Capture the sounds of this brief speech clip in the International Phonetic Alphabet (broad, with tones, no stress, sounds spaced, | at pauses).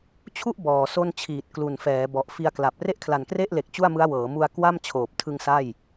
t͡ɕʰ u˥˩ ʔ b ɔː˨˩ s o˥˩ n t͡ɕʰ iː˨˩ t̚ k l u˨˩ n f ɛː˩˦ b ɔ˨˩ ʔ f i˧ a̯ k l a˨˩ p̚ r e˥˩ ʔ kʰ l a˨˩ n k r e˥˩ ʔ l e˨˩ k̚ t͡ɕ u˥˩ a̯ m ɯ˦˥ a̯ w ɤː˩˦ m u˧ a̯ k w a˥˩ m t͡ɕʰ oː˨˩ p̚ tʰ ɯ˧ ŋ s a˥˩ j